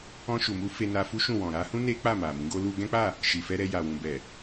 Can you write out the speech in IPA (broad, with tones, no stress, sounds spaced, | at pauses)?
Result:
ɔ̃˧ ʃ u˨ m u˧ f e˧ n a˧ f u˦ ʃ ũ˦˨ w ɔ̃˨ ɾ a˨˦ h ũ˦ n e˦ k͡p a˦˨ m a˨ m ĩ˨˦ ɡ o˦ l u˦ ɡ ɛ̃˦ k͡p a˦˨ | ʃ i˨ f ɛ˧ ɾ ɛ˧ j a˨ w ũ˨ b ɛ˨